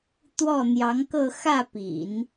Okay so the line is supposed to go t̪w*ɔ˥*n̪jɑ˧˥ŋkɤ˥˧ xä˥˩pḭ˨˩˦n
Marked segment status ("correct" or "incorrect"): incorrect